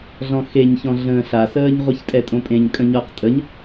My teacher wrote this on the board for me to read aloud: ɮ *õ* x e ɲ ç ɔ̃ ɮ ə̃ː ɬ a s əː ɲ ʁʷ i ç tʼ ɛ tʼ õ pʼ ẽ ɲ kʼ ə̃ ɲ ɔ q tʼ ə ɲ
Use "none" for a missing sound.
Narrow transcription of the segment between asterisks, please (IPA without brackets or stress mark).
ɔ̃